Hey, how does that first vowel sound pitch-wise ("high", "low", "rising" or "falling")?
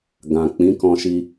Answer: low